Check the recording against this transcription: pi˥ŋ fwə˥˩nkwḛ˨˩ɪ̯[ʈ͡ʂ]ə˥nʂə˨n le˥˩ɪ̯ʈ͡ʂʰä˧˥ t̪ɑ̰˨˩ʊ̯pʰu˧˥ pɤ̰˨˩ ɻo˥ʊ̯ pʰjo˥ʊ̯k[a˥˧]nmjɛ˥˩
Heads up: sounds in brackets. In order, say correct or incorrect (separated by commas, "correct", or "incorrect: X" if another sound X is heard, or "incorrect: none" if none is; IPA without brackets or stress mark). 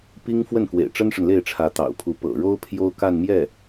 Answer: correct, correct